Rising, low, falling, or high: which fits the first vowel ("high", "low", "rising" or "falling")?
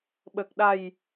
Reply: low